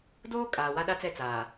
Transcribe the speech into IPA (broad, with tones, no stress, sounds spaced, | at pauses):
d oː˦ kʼ aː˨ w a˦ ɗ a˦ t͡s ɛ˦˨ t͡s aː˨